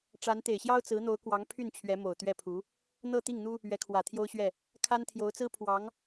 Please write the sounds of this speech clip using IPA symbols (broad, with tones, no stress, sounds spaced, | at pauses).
ʈ͡ʂ a˧˥ n t̪ e˨˩ ɪ̯ ɕ j ɑ˥ ʊ̯ t͡s ɹ̩˧˥ n̪ o˧˥ ʊ̯ k w ɑ˧˥ ŋ pʰ y˥˩ n t͡ɕʰ ɥ ɛ˧˥ m o˨˩ ʊ̯ t̪ ɥ ɛ˥˩ pʰ u˧˥ | n̪ ɤ˥˧ t̪ i˥˩ ŋ n̪ u˥ | ɥ ɛ˧˥ kʰ w ä˨˩ t̪ʰ j o˥ ʊ̯ ɕ ɥ ɛ˥˩ | kʰ a˥ n t̪ʰ j o˧˥ ʊ̯ t͡s ɹ̩˥ pʰ w ɑ˧˥ ŋ